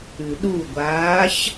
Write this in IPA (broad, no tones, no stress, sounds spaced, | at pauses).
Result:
ʉ ɗ u ɡʷ aː ç